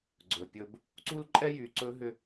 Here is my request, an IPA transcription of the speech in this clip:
ɡ͡ǀɵ˨ pʲɵ˨b | ǀu˦lǃʼɛ˦jy˨ ǀɵ˦ɦʏ˦

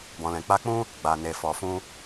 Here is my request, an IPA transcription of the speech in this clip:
bɔ̃˨lɛ̃˨k͡pa˧k͡pũ˦ | ɡ͡ba˨ne˨fɔ˨fũ˧

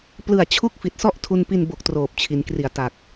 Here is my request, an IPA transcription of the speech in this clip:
plɯ˨˩a̯ t͡ɕʰu˥˩k̚fi˨˩t̚sɔ˥˩ʔ tʰu˧npi˧nbo˨˩k̚ troː˨˩p̚t͡ɕʰi˩˦nkri˨˩a̯ ta˨˩k̚

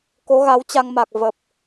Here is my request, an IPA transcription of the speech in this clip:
ko˨˦ɣa˨˦wt͡ɕa˧ŋma˨˩k̚ və˨˩p̚

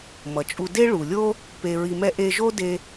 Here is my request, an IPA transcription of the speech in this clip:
mʌ˩t͡ʃʼu˧ de˥ɭu˩lʲo˥ | pe˧ ɹi˧mɛ˥ ʔe˧ʒo˥de˧

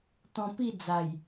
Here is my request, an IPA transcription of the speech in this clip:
t̪ɔ̃˧pi˥˧ d͡za˨˩j

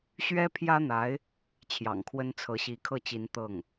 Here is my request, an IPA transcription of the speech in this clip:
ɕɥɛ˥pʰjä˥n̪a˧˥ɪ̯ | t͡ɕʰjɑ̰˨˩ŋkʰwə˥nt͡sʰɤ˧˥ɕi˧˥ kʰɤ˥˩t͡ɕi˧˥n t̪ɤ˥˩ŋ

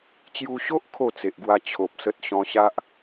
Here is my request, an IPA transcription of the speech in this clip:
t͡ɕju˧ɕo˦ʔ kʰo˥˧t͡se˨ʔɡwa˧ t͡ɕʰo˨p̚sə˦t̚ ɕɔ̃˧ɕa˦ʔ

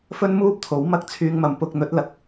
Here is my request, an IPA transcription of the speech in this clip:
fɵ˥nmuː˥p̚t̪ʰo˨˥w mɐ˥k̚t͡sʰyː˧ŋmɐ˨m pʊ˧k̚ n̪ɵ˨˥t̚ lɐ˧k̚

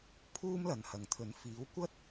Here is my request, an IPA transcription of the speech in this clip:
pʰuː˥mlɐ˨nhɐ˨ŋt̪ʰɵ˨˥n fiː˨˥wkʷɐ˥t̚

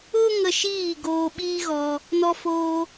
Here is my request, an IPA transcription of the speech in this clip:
o˦ ŋə˧ʃiː˦˨ ɡoː˧ɓiː˦ɣɔ˧ | nɔ˧foː˧

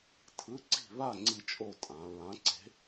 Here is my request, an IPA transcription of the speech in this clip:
tʰɯ˧˥˧ǀi̤˥˨ βa˥˨ ŋ͡ǀi˥˨t͡ʃʼo˥˨ tʼã˩˧ɹã˨˥ ǀe̤˨˥

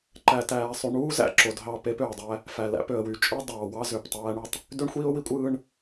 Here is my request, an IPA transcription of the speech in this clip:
ǃæ˨tæː˨sˤy˨ ɳuː˦zæ̰˨ ǁo˨dɦɑ˦˨pe˦p ø˨ə̯dˤæ˦ | fæ˨læ̰˦pø˨ə̯wy˨ t͡ʃʼɯ˦ dˤɑː˨wɑ˦ zø˨ptˤæː˦ ɳy˦tˤ | dø˦ɳxʷiː˦ʊ̯wi˦ kʷʼɯː˦ɳ

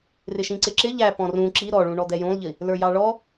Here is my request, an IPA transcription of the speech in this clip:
rɪʃĩǀɪǁɪ ʎæ pɔ̃rũ ǁi ɾɔɭũ ɳɔd̪ɛjũlˠʎi | lə˞jɑɭɔ

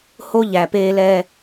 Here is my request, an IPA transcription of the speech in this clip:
ho˦ ʎæ˨peː˦lɛː˦

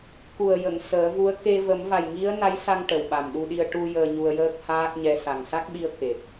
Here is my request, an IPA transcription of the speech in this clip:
ku˨˩ə̯ jə˨˩˨ŋ səː˨˩˦vu˧˥ə̯ ke˧ və˨˩˦mva˨˩jŋi˧˥ə̯ na˧˥jsa˧ŋ ʈə˨˩wɓa˨˩mɗu˧ɗi˧ə̯ ʈu˧ jəː˧ɲu˧ə̯jəː˦˥k̚ haː˦˥k̚ɲɛ˧ sa˨˩ŋsa˦˥k̚ɓi˧ə̯ ke˨˩t̚

